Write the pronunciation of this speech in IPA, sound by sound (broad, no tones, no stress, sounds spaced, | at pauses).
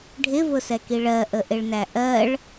ɖʱ ɪ v ʊ s ɛ k i ɭ ɜ ʔ ə ʔ ɪ ɭ n æ ʔ ɜ ɭ